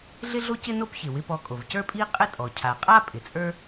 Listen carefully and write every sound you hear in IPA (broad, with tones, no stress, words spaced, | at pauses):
ɮɪ˥ɮo˥cɪ˥ no˥pçɪ˩ wɪ˧pɔ˧kʼo˩v cə˞˥pʼi˥qʼɪ˥tʼɔ˩ cʰa˩qʼa˥ pʼɪ˩t͡sʼə˞˥